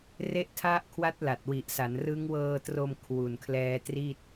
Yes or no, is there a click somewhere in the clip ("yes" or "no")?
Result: no